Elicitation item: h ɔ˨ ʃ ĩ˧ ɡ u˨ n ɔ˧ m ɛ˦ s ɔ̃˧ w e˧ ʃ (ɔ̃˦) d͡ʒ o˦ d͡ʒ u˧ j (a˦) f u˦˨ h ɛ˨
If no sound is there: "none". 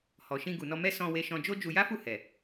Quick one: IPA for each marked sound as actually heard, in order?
ɔ̃˧, a˦

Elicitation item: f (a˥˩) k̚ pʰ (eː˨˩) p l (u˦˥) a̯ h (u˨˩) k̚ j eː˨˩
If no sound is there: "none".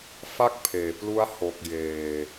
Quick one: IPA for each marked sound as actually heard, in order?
a˥˩, eː˨˩, u˦˥, o˨˩

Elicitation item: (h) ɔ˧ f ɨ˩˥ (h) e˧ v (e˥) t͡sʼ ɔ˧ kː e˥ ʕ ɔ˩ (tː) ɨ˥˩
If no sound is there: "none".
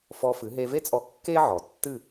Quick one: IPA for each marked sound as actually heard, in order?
f, ɦ, e˥, tː

